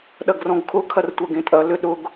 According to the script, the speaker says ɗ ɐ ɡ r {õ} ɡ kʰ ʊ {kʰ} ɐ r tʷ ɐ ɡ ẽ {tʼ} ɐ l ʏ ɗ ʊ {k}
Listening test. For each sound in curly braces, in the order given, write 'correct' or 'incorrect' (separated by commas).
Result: incorrect, correct, correct, incorrect